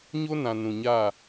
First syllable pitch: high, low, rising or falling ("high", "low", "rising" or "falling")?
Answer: high